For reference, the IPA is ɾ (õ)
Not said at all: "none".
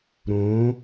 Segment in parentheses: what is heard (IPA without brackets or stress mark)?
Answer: õ